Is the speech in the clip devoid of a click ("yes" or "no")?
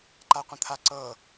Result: no